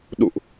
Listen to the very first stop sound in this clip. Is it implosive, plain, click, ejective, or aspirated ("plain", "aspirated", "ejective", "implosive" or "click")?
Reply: implosive